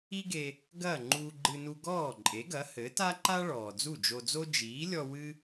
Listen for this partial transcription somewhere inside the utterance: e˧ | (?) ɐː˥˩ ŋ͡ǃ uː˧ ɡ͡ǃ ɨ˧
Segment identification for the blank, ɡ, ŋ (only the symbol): ɡ